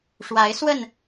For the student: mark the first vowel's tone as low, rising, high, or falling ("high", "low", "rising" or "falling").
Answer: rising